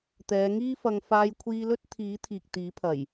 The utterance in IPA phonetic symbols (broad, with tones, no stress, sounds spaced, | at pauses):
t̪ ɛː˨˧ ŋ iː˥ f ɐ˧ ŋ f aː˧ j kʷʰ iː˧ l ɵ˥ t̚ t̪ʰ iː˨˥ t̪ʰ iː˨ k̚ t̪ iː˨˥ pʰ ɐ˨˩ j